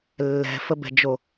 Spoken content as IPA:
lːɛ̤fəbɛ̤d͡ʒo

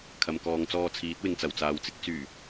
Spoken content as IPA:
kʰɐ˨mkɔː˨ŋt͡sɔː˧ t͡sʰiː˨˥t̚wɪ˨ŋt͡sɐ˨˩w t͡saː˨wt͡sɪ˥k̚ t͡syː˨˩

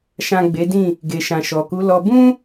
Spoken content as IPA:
ʃã˨ ɡ͡be˨˦dĩ˦˨ | ɡe˨ʃã˨ʃɔ˨ ku˨˦lɔ˧ bũ˦

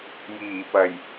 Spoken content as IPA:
jiː˨˩pɐ˨˩j

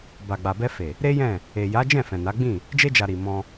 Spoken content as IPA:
ba˨ɡ͡ba˨bɛ˧fe˨ | ɾe˦jɛ̃˦˨ | e˨ja˨˦d͡ʒɛ̃˦˨ fɛ̃˨na˨˦ ɡ͡bĩ˦˨ | d͡ʒe˧d͡ʒa˨ ɾi˨ mɔ̃˧

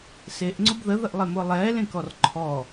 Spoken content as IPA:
seʔŋ͡ǀʊb ðəðəʔlˠemʊː lˠɛːlẽkɔr ǃʰɔ

